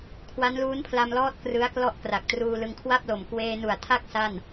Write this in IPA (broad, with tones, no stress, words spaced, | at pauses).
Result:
kʰwa˦˥nluː˦˥npʰla˧mlɔː˦˥t̚ krɯ˦˥a̯klɔ˥˩ʔ kra˨˩k̚truː˧lɯ˧ŋ kʰwa˥˩p̚lo˨˩m kweː˧nu˨˩a̯tʰa˥˩k̚ sa˥˩n